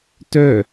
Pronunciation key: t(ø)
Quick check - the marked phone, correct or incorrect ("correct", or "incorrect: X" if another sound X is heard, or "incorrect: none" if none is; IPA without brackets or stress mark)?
incorrect: œ